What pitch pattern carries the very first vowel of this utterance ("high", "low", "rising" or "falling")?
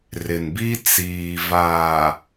low